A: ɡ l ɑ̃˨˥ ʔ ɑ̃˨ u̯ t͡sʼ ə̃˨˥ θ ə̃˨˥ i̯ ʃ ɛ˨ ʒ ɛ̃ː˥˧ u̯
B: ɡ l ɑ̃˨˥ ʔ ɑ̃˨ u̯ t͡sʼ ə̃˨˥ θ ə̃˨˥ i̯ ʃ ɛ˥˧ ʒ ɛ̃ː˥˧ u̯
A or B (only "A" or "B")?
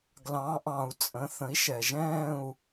A